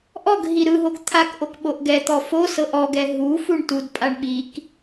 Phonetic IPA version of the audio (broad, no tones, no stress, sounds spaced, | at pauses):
ʔ ɔ ɡ ɦ i ɾ ɯ ɦ o ɡ t̪ʰ a k ʔ o k ɓ o ʔ ɡ ɛ t̪ ɔ f o s ɤ ʔ ɔ ɡ ɛ ɦ u f u ɳ t u d pʼ a ɳ ɓ i k